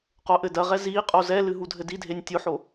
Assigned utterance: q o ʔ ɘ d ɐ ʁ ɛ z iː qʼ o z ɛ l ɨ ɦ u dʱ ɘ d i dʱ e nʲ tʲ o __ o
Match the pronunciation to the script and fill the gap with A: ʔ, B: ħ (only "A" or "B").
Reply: B